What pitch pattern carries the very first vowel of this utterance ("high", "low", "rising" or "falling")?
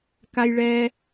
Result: high